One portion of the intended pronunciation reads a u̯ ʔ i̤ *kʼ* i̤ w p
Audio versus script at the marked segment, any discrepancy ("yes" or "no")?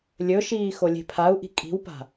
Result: no